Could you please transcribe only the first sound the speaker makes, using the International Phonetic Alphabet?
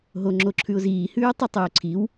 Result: ɦ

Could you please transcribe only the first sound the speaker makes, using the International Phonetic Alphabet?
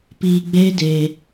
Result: p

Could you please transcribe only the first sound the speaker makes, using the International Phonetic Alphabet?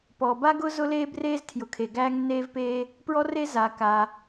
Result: p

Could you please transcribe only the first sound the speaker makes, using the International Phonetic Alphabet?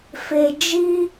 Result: f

